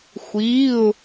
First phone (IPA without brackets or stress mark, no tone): xʷ